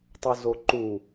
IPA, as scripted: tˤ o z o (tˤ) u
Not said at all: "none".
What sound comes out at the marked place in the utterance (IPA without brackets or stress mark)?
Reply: ǃ